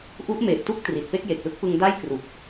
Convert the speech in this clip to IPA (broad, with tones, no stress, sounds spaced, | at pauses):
ʔ u˦˥ ʔ m eː˨˩ p̚ t u˥˩ k̚ t r i˨˩ t̚ p e˥˩ k̚ j e˨˩ k̚ l ɯ˥˩ k̚ p ɯ˧ ŋ d a˥˩ j k r u˨˩ k̚